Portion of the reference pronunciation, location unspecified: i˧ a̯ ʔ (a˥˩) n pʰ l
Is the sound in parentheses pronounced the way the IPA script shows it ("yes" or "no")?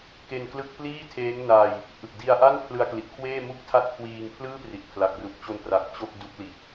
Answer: yes